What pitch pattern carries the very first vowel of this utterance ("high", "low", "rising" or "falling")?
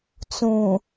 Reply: low